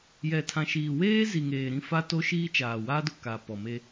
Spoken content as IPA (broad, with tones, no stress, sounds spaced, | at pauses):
j ɛ˨ tʰ ã˨ ʃ iː˨ w eː˦ z i˨ ŋ eː˨ ɾ ĩ˦˨ f a˦ t o˦ ʃ iː˦ t͡ʃ aː˨ w aː˦ d ʊ˨ k a˨ p ɔ˨ m e˦